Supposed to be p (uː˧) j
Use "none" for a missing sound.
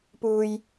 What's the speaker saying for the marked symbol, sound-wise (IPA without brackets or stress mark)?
uː˧